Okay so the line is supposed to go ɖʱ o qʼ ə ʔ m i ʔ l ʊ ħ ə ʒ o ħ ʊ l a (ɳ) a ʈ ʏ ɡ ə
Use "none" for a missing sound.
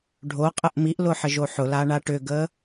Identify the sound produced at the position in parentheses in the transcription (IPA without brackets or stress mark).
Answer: ɳ